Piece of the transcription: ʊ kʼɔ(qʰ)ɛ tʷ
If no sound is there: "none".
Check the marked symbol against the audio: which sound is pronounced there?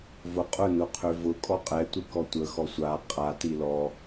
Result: qʼ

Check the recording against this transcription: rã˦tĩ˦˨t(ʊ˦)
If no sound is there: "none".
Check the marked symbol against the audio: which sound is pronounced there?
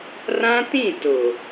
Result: ʊ˨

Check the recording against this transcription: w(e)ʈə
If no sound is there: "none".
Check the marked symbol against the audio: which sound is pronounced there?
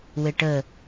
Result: e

